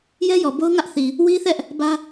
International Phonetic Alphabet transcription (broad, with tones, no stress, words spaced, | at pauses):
jɛ˦jɔ˨bo˦ʊ̯ ŋä˦ʔθi˨ | wi˦θɛ˦ʔ | bä˦